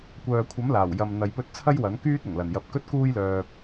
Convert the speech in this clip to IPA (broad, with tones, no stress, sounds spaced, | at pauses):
kʷ œː˨ kʷʰ ɐ˨˥ m l aː˨˩ w j ɐ˨ m n̪ ɐ˨˧ j p ɵ˧ t̚ t͡sʰ ɐ˥ j w ɐ˨˥ n k yː˥ t̚ ʊ˨˩ ŋ l ɐ˨˩ n j ɐ˨ p̚ k ɵ˥ t̚ k uː˥ j l œː˧ p̚